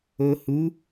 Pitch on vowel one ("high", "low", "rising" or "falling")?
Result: low